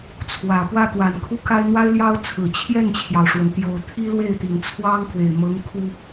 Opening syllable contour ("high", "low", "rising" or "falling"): low